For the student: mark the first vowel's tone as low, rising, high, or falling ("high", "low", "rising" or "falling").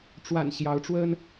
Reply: low